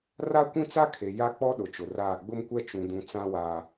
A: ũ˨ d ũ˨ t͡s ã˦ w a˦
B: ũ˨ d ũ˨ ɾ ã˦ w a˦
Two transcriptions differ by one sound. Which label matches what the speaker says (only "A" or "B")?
A